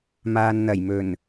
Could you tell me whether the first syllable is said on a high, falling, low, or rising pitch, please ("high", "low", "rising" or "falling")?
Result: low